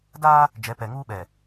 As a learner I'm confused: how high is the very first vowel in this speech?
low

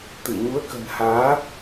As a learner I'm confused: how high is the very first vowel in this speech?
high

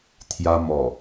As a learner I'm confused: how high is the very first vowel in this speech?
low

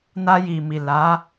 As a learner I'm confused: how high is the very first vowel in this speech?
low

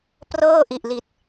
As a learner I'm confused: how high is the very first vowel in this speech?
mid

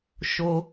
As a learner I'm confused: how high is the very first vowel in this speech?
mid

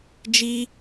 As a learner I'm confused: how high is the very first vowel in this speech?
high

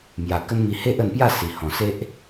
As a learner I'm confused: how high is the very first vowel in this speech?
low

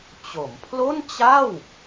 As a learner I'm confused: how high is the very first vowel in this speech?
mid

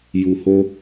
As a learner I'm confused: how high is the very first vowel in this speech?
high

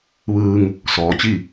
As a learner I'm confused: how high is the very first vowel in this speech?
high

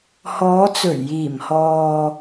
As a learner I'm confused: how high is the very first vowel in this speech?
mid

